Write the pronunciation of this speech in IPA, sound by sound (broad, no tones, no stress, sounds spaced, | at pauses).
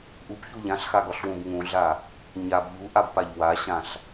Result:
ʔ u p ç u ʎ ã ɬ x a ɡ ɒ ɬ w ũ b ŋ ũ ɮ a | ɲ a b ʎ u ʔ a b p a ʎ w a ɕ ã ɬ